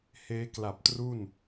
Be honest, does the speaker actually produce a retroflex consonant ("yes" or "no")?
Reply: no